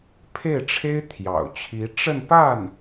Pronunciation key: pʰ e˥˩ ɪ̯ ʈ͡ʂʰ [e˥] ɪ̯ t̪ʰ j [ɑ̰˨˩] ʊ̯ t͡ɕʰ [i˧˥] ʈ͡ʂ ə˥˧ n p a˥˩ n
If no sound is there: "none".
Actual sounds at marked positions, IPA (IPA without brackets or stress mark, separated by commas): e˥, ɑ̰˨˩, i˧˥